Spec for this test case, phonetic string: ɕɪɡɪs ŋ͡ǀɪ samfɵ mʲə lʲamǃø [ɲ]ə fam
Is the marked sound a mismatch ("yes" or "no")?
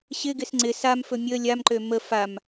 yes